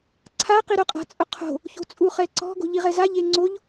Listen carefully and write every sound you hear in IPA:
ǀʰ a q i ɾ o qʼ a̤ t͡sʼ ʊ qʰ o̤ | ç o̤ t͡sʼ u χ ɛ ǀ ɔ̤ ɡ o̤ ʎ i ʁ ɛ z a ʎ e ŋ͡ǀ o ʎ

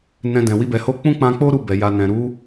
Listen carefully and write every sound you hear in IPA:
n ɛ̃˧ d ɛ̃˨ w i˧ b ɛ˨ h o˧ k͡p ũ˦ k͡p ã˧ k͡p o˦ ɾ u˦˨ b ɛ˨ j a˨ n ɛ̃˨ ɾ u˨˦

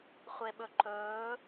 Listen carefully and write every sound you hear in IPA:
χʷ e ɓ ɵ ǃ ɵː

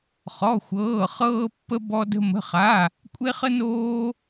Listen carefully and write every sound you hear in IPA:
χ ɔ˧˥˧ xʷ ɤː˧˥˧ χ ɤː˥ pː ə˥ b ɔ˥ d ə̤˥ m ə̤˧˥˧ χ a˧˥˧ | kʷʼ e˥ χ ə˥ n oː˥

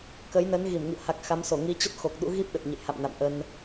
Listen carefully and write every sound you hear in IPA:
k ə˨˦ j n ə˨˦ n ɣ i˧˩ m ŋ ḭ˧˨ ə̯ h a˨˩ k̚ x a˨˦ m s o˧˩ ŋ i˨˦ t͡ɕ ə˦˥ t̚ x o˨˩ k̚ ɗ ṵ˧˥ ɣ i˦˥ p̚ ɗ ə˨˩ t̚ ɲ ə̰˧˨ j h a̰˧˨ m n a̰˧˨ m ʔ ə˧ n

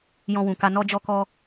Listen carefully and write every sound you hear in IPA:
j ɔ̃˧ w ũ˨ k a˧ n ɔ˦ d͡ʒ ɔ˦ k ɔ˦

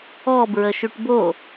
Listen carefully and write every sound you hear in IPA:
ɔ b ɹ ə ʃ y ʈ b o

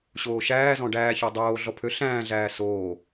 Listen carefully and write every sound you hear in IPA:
ɕ oː ʃ æː z ɔ̃ ɖ æː ç ɔ dˤ oː ɮ ɔ pʰ ø ɬ æ̃ː ɮ æː s oː

